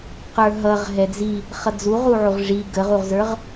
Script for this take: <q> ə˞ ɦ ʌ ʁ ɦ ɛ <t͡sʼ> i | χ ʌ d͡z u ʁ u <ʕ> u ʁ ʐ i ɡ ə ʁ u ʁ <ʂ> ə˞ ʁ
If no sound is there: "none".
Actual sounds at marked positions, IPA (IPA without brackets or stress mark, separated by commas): q, d͡z, ʕ, z